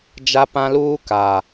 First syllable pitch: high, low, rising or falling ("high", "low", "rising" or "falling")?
high